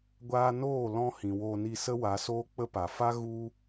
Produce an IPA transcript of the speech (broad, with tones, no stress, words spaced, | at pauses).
ɡʷaː˧noː˦˨lɔ̃˧ hĩ˨ woː˧ni˧sə˦ wa˨˦soː˦k͡pə˦pa˨ fa˦ ɣu˦